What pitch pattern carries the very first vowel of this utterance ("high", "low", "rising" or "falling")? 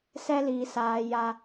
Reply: high